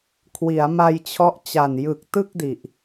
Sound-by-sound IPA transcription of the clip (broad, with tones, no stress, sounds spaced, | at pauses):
kʰ w i˩˦ a̯ m a˧ j t͡ɕʰ ɔ˦˥ ʔ t͡ɕ a˨˩ n j ɯ˨˩ k̚ t ɯ˥˩ k̚ d i˨˩ ʔ